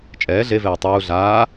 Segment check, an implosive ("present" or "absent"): absent